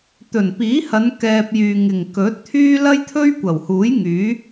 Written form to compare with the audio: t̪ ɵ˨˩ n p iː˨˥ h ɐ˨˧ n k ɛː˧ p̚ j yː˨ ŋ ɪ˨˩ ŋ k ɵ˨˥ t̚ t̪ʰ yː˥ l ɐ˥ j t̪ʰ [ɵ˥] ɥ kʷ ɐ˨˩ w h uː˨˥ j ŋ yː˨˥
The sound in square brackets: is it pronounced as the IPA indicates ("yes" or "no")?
yes